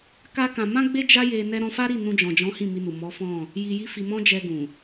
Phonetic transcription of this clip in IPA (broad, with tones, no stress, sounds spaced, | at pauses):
k a˦ k ã˧ m ã˦ ɡ͡b e˦ d͡ʒ a˦ j e˧ n ɛ˦ ɾ ɔ̃˧ f a˦ ɾ i˦˨ n ũ˧ d͡ʒ ɔ̃˨ d͡ʒ ɔ̃˨˦ h ĩ˦˨ m i˧ n u˨ m ɔ˨˦ f ɔ̃˦˨ | j i˧ j i˦ f i˧ m ɔ̃˦ d͡ʒ ɛ˧ ɡ ũ˨